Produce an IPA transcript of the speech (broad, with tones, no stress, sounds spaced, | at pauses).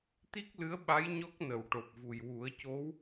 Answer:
t̪ i˦˥ k̚ l ɨ˧˥ ə̯ ɓ a˧˥ j ɲ ɔ˦˥ k̚ n ə˨˩˨ w ʈ o˨˩ p̚ v u˨˩ j w u˨˩˦ ə̯ c o˧˥ w